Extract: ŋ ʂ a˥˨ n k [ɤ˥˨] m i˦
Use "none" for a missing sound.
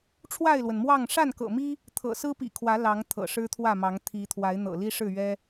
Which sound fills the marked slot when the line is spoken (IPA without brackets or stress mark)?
ɤ̰˨˩